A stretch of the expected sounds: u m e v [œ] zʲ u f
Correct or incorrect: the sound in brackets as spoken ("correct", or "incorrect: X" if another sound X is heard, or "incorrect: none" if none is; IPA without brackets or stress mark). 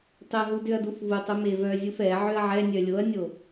correct